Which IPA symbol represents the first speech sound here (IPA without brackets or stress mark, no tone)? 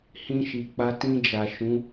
h